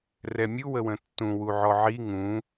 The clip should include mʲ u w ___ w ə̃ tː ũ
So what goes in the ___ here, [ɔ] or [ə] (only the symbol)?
ə